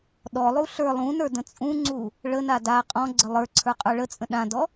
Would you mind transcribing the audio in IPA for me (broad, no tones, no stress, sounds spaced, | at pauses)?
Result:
ɗ ɔ lˠ u ɬ ə˞ lˠ ũ n ə˞ d ə̃ t͡sʼ ũ ŋ͡ǀ u | ɭ ə n a d a qʼ ɔ̃ ɡ͡ǀ ə lˠ ə˞ ǀʰ ə˞ qʼ ə˞ ɭ ə t͡sʼ ə̃ ɗ ã d ɔ